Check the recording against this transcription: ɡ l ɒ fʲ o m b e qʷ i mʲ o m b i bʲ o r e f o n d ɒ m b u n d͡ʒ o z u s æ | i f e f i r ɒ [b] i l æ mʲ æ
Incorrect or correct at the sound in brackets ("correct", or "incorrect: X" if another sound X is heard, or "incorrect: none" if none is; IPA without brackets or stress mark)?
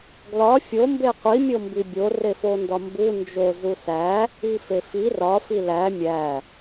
incorrect: f